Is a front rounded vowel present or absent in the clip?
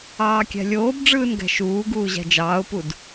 absent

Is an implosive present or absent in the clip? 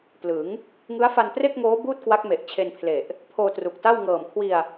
absent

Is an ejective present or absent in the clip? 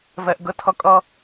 present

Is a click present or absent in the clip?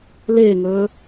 absent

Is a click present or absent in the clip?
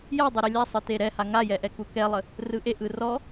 absent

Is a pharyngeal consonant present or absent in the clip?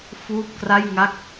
absent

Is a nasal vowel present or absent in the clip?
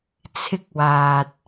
absent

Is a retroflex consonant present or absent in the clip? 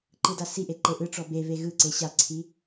present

